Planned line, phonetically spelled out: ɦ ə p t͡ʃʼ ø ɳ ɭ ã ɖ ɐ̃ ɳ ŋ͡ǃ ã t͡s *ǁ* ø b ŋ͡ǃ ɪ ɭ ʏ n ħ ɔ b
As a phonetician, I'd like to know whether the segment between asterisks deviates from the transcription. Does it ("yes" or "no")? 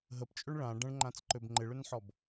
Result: yes